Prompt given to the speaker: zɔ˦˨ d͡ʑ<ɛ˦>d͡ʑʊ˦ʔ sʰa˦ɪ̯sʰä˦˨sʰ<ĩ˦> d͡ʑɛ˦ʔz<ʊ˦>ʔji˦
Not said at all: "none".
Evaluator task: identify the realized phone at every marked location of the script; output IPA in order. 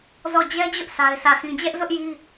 ɛ˦, ĩ˦, ʊ˦

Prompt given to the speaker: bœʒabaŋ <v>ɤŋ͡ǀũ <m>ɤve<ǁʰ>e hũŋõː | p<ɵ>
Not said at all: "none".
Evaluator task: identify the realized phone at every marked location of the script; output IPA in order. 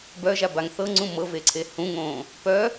θ, m, ǀʰ, œ

